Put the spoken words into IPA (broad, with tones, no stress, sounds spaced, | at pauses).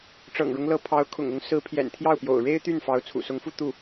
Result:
ʈ͡ʂ ɤ̰˨˩ ŋ ɻ ʊ˦ ŋ l ɤ˧˥ pʰ ɑ˧˥ ʊ̯ kʰ ʊ̰˨˩ ŋ ʊ˧˥ ŋ s ɹ̩˧˥ pʰ j ɛ̰˨˩ n t̪ʰ j ɑ˥˩ ʊ̯ p j o̰˨˩ ʊ̯ ɻ e˥ ɪ̯ t̪ y˥˩ n f ɑ˧˥ ʊ̯ t͡sʰ ṵ˨˩ s ʊ˧˥ ŋ f u˥˧ t̪ u˥˩